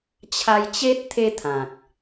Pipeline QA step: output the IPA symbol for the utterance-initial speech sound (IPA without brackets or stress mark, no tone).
t͡ɕʰ